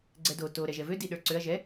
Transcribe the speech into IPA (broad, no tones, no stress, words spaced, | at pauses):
ɡ͡ǀɛdo to ɾɛʒɛvø diɗə˞ǀøɐ̯ ʒɛ